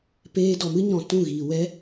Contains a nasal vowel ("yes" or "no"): yes